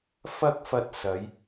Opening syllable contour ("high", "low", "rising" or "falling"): high